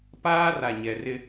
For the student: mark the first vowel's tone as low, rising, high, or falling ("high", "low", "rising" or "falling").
high